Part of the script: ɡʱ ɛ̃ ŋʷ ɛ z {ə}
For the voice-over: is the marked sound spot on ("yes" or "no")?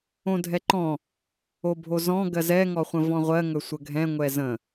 no